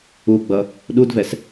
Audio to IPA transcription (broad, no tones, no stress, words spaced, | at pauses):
uɡ͡bʌ | ɗudvɛs